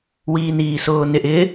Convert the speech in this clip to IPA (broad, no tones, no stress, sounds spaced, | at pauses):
w iː n iː s ʊː n ɪ ʔ ɪ